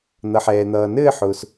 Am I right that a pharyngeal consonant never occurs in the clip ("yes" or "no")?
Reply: no